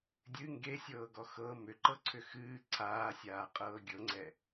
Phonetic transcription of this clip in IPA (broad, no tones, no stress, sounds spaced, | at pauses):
dʲ ɨ ŋ ɡ e sʲ ɤː ɡ ɔ x ɤ m ʏ ǃ ɤ ǀʰ ʏ x ɨː ǀʰ aː sʲ aː qʼ ɤː ɡʲ ɤ ŋ͡ǀ ɛ